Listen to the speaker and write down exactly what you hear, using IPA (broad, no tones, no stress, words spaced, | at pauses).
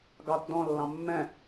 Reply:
ɡɑt dɔ̃lːɑ̃ mːɛ̃